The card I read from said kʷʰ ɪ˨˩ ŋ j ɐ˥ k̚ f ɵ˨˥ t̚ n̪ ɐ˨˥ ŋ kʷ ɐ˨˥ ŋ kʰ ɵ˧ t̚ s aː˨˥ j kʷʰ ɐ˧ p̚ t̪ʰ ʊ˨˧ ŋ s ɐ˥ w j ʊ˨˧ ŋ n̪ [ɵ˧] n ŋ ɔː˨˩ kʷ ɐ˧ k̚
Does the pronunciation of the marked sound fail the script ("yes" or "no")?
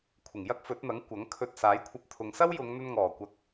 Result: no